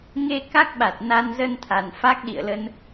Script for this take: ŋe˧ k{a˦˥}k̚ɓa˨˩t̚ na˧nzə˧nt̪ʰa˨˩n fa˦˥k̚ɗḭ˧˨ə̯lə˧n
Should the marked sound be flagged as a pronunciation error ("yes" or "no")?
no